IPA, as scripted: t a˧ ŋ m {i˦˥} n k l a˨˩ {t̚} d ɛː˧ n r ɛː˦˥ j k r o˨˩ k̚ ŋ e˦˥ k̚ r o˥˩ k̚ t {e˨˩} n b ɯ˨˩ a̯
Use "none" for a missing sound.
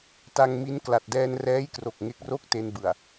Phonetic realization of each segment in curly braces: i˦˥, t̚, e˧

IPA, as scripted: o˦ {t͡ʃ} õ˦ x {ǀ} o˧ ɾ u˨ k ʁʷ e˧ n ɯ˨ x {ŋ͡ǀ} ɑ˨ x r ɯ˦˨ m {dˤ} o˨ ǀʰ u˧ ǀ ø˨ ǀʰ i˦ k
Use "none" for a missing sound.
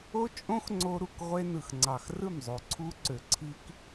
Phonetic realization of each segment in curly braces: t͡ʃʼ, ŋ͡ǀ, ŋ͡ǀ, zˤ

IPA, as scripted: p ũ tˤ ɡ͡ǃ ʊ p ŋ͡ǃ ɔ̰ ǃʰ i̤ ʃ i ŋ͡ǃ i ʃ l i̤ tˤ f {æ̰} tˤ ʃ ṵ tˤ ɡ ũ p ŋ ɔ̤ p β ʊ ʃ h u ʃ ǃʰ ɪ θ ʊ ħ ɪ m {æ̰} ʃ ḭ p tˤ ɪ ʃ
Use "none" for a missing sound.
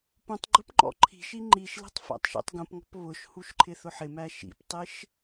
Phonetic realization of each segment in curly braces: æ̰, æ

